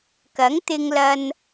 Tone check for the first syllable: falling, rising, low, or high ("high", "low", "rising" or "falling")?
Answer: rising